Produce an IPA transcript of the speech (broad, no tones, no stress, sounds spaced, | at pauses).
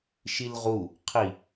ʃ i l ʁ u | qʰ i